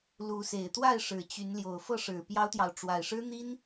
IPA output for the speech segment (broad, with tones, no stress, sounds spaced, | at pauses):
l u˨˦ s e˨˩ ɪ̯ t̪ w a˥˨ ɪ̯ ʂ ɻ̩˨˩ t͡ɕ y˨˦ n l j o˨˩ ʊ̯ f ɤ˥˨ ʂ ɻ̩˨˩ p j ɑ˦ ʊ̯ t̪ j ɑ˨ ʊ̯ ʈ͡ʂ w a˨˩ ɪ̯ ʂ ɻ̩˦ n̪ i˦ n